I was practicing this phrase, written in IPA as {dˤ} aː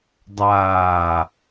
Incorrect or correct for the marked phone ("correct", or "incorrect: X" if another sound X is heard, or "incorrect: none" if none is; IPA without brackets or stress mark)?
correct